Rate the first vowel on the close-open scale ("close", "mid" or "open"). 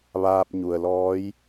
open